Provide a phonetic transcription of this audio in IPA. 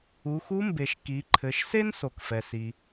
u˩˧ x u˧˥ m b e˩ ʃ k i˩˧ ǃʰ ɘ˩˧ ʃ s e˥ n s o˩ k f ɛ˩ s i˩

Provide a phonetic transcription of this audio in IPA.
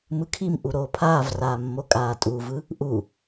m ɯ kʰ i m ʔ u ɾ oː pʰ aː v r aː mː o kʼ aː tʼ u v ɯ | ʔ u

